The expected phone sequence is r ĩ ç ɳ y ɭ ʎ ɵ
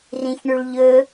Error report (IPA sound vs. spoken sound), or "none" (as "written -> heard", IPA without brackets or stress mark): none